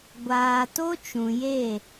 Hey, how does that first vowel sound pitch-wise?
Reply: low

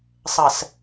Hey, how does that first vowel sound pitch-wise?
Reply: low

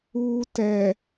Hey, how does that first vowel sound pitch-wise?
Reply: low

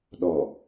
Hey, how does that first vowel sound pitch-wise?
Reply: low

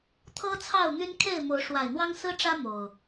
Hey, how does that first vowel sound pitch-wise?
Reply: high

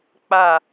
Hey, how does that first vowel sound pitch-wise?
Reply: falling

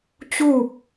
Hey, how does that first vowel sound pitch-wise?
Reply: falling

